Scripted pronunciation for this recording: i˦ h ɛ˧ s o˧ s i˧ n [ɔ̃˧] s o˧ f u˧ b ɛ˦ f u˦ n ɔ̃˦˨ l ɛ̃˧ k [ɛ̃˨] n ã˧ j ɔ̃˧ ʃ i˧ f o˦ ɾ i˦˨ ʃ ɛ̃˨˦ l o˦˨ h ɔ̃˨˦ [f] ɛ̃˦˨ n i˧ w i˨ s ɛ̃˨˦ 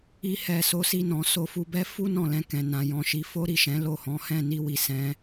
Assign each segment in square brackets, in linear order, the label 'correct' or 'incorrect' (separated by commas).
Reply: incorrect, correct, incorrect